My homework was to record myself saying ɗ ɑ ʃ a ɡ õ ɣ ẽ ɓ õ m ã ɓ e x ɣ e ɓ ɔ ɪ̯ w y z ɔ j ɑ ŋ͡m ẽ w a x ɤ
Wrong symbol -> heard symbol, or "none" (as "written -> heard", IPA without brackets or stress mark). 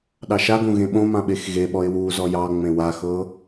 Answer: y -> u